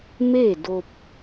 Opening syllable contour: falling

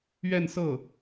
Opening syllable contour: falling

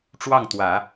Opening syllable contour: falling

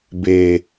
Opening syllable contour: low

